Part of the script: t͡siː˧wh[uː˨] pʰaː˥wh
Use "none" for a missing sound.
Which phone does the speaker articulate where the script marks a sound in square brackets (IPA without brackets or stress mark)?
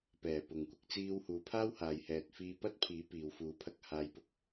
uː˨